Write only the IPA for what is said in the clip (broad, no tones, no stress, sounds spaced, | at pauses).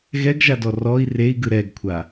ɣ ɛ ɡ ʒ a d ɔ r ɔ i̯ r e i̯ ɡ ɯ ɾ ɛ ɡ kʷʰ a